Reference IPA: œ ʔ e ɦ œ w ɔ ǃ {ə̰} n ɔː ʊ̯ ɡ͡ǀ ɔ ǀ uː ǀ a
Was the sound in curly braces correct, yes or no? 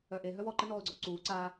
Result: no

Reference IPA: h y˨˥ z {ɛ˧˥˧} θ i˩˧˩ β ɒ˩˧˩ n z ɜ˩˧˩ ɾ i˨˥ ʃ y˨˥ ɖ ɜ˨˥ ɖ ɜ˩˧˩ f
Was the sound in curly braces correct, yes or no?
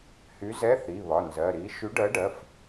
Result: yes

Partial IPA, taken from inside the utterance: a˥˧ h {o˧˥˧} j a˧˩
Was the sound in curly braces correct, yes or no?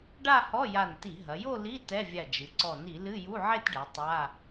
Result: no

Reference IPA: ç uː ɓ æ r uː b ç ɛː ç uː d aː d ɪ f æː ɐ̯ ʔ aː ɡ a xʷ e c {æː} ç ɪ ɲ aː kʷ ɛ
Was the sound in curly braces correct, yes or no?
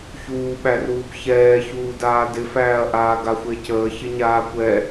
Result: no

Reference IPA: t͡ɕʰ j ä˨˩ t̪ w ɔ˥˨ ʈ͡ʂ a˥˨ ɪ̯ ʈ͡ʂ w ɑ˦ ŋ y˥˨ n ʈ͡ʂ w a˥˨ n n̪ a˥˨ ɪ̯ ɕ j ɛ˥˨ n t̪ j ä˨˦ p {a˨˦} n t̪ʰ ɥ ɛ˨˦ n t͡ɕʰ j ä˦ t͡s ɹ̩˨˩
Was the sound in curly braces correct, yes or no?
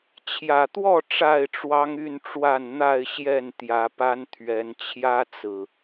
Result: no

